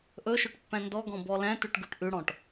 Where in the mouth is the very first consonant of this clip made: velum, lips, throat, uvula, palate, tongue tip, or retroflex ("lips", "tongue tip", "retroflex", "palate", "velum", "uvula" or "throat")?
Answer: throat